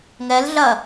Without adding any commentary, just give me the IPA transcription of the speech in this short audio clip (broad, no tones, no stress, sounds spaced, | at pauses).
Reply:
ŋ ɛ l ɮ ɐ